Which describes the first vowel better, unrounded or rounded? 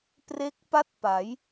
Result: unrounded